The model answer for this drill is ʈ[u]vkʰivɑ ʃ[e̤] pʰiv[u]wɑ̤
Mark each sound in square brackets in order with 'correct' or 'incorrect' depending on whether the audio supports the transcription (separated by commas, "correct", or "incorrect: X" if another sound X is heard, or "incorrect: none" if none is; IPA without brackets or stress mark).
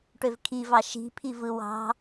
incorrect: ø, incorrect: i̤, incorrect: ɯ